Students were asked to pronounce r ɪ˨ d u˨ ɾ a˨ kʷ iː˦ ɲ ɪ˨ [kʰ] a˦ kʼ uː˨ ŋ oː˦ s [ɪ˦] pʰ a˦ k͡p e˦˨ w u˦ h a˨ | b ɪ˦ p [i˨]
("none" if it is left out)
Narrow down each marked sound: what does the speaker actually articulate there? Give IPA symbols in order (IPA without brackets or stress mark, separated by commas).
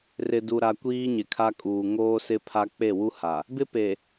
kʰ, ɪ˦, e˨